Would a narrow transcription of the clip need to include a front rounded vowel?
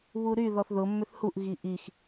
yes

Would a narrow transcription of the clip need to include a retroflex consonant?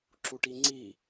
yes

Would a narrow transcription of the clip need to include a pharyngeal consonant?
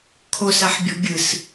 yes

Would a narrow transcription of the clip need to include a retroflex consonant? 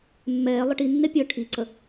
yes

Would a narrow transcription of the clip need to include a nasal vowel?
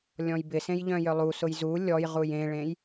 yes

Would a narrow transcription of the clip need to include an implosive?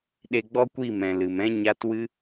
yes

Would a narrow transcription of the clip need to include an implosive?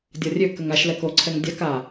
no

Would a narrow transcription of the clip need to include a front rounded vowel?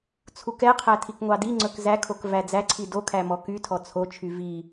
yes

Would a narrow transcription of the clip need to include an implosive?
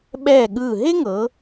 yes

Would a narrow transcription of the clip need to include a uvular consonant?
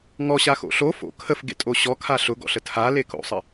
no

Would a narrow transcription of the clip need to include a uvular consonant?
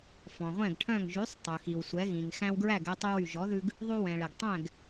yes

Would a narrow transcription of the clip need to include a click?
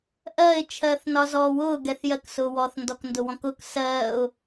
no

